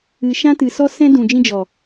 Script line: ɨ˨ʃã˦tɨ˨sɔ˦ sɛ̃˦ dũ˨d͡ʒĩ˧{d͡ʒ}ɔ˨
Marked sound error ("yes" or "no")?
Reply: no